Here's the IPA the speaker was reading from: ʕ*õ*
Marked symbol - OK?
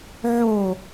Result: no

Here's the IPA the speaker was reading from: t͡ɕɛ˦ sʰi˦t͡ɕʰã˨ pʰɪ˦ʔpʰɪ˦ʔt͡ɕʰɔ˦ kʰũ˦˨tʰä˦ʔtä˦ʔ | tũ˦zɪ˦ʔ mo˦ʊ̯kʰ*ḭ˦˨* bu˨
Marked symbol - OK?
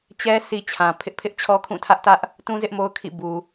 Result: yes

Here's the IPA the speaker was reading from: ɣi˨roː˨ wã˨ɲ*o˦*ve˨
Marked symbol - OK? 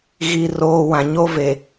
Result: yes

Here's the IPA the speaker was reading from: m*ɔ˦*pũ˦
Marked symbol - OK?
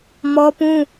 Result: yes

